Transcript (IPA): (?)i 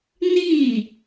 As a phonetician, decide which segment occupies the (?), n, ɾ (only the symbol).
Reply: n